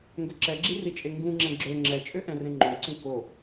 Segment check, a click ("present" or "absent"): present